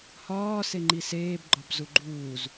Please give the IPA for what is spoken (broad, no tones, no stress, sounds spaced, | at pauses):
h ɒː s e ŋ͡ǃ i s eː b ɡ͡ǃ ɒ b z u ɡ͡ǃ uː z